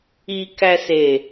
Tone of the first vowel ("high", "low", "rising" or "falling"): low